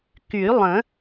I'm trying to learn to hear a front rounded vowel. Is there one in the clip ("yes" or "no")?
yes